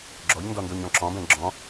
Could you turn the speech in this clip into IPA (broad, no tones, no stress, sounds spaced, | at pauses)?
ɡ͡ǁ ɔ ʎ n d ɔ n d o ɲ ɔ̃ ǁ ɔ̃ b ɛ̃ ɡ͡ǁ ɔ̃